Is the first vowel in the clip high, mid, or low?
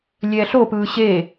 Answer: mid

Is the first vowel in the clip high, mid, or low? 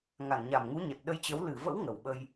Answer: low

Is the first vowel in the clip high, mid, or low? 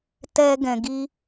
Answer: mid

